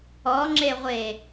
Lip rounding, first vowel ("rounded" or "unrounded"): rounded